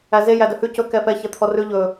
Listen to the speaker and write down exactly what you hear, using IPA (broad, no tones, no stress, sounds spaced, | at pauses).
æ z e j æ d œ h ʉ c ɵ k ɛ f ɛ ç ɛ t̪ʰ ɔ r ʉ ʎ ɵ